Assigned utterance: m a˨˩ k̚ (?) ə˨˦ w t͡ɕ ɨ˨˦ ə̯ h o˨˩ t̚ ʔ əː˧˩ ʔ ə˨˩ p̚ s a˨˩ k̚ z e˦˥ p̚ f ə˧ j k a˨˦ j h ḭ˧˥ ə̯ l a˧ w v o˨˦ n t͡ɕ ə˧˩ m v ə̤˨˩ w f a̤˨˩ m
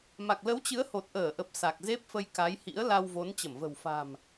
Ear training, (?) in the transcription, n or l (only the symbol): l